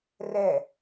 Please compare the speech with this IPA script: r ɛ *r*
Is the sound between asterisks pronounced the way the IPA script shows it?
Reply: no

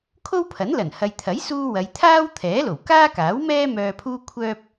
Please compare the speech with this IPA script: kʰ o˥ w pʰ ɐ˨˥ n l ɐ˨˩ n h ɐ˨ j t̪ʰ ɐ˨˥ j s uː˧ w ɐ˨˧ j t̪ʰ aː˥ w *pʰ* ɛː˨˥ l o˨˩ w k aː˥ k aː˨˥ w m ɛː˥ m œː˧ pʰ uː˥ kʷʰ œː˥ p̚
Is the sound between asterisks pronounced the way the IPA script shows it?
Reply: no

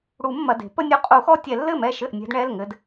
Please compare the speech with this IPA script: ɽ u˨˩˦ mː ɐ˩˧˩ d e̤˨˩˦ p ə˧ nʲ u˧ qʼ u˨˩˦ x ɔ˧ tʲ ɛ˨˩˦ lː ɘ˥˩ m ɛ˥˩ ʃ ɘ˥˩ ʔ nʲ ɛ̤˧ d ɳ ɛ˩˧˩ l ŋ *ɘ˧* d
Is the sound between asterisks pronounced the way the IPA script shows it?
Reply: yes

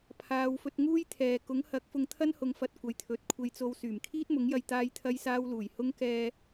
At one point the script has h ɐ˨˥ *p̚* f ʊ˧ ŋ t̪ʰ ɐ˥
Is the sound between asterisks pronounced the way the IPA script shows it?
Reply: no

